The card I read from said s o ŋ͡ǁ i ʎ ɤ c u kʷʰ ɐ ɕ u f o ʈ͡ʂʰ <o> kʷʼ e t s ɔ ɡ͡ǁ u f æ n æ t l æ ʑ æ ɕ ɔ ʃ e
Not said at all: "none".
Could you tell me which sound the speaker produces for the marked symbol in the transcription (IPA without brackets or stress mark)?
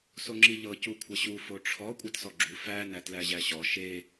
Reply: ɔ